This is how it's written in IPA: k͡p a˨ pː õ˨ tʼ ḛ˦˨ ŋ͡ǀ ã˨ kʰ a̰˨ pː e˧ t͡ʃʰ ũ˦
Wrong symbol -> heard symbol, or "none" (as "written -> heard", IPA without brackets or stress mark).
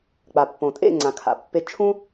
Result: none